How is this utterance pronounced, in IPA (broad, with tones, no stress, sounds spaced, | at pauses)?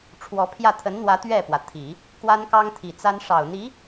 ʈ͡ʂʰ w ɔ˧˥ pʰ j ä˥˩ t̪ʰ ə˧˥ n n̪ w ä˧˥ t̪ ɥ ɛ˥˩ p w ä˩ t̪ʰ i˨˩˦ | k w a˥ n k ɑ˥ ŋ t̪ʰ i˨˩ t͡s a˥ n ʂ ɑ˨˩ ʊ̯ n̪ i˧˥